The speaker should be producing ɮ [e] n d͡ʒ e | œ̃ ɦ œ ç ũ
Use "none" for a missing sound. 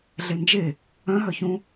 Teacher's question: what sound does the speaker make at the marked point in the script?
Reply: e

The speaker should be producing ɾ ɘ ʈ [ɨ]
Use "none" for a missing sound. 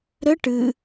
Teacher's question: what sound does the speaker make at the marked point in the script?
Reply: ɨ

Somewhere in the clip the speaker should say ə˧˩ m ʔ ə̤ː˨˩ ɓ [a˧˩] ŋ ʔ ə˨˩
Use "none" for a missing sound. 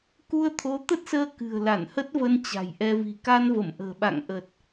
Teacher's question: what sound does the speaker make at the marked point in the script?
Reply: a̰˧˨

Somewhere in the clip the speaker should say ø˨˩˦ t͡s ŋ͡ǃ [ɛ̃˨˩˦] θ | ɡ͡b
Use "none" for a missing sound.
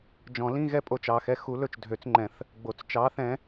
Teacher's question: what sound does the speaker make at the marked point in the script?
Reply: ɛ̃˨˩˦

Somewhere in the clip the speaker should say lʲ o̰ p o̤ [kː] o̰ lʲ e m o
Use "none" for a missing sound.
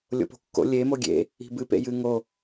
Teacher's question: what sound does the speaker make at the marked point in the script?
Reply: kː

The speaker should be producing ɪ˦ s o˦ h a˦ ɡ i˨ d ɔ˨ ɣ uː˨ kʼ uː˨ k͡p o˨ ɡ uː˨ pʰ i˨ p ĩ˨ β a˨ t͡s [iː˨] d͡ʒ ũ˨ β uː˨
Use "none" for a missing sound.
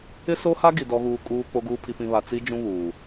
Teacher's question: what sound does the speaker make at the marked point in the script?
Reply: i˨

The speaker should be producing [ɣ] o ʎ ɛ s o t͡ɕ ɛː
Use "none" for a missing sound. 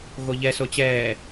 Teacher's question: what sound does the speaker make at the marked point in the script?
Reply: ɣ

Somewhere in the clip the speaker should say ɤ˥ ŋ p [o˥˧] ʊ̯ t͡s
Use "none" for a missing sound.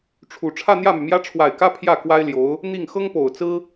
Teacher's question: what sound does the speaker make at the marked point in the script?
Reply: o˨˩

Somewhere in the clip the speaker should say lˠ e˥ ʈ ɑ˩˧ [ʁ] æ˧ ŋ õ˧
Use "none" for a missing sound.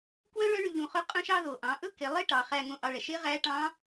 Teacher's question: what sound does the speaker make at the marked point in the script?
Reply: χ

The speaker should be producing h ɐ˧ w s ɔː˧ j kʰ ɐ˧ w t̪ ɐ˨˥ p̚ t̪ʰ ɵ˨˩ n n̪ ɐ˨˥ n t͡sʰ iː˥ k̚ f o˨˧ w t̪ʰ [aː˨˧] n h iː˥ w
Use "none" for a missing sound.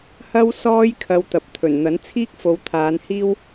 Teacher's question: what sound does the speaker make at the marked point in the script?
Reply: aː˨˧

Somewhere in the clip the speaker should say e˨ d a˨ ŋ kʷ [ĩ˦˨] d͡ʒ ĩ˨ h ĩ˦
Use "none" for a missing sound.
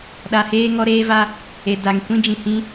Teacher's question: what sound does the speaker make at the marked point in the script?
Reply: ĩ˦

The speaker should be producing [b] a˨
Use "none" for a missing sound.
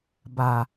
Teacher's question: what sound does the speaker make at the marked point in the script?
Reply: b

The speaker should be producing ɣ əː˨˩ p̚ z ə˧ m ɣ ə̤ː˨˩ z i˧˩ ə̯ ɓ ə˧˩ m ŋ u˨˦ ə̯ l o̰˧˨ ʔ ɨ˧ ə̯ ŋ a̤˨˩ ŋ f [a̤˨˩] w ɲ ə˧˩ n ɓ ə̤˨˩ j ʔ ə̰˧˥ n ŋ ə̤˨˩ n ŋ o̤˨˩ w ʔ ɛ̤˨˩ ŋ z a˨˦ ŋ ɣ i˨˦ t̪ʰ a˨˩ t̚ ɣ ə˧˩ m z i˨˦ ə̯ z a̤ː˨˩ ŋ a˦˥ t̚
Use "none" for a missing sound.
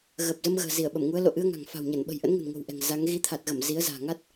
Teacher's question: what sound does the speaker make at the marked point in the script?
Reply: a̤˨˩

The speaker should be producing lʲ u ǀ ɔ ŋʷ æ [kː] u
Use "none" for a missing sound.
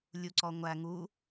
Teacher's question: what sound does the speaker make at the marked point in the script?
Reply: ŋ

